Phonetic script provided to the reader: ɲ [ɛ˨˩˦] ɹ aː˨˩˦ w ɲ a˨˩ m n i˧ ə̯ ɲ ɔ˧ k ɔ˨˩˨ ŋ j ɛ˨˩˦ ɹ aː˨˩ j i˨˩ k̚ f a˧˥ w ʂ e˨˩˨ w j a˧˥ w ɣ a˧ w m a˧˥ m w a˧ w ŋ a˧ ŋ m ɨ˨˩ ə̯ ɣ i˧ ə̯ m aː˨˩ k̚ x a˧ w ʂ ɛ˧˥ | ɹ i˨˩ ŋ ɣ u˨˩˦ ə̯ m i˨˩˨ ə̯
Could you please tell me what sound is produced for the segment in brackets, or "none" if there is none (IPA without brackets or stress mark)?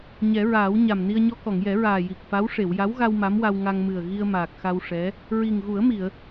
ɛ˨˩˦